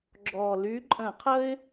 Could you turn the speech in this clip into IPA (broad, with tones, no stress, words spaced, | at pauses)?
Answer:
ɡ͡ǁɔ˨˩ly˧˥ǃʼə̃˧˩˧ qʰə˧ɪ̯